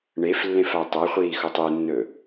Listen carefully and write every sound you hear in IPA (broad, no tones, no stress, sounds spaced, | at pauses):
ɳ e f lː ẽ f a tˤ o χʷ iː x o tˤ ɨ nː ɵ